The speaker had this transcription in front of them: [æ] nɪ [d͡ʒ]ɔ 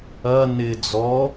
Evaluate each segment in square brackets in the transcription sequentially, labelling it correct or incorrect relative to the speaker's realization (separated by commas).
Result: incorrect, incorrect